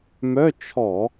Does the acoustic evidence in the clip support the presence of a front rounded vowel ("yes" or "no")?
yes